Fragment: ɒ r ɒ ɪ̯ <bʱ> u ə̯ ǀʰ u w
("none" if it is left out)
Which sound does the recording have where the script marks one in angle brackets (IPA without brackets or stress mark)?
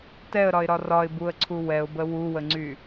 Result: b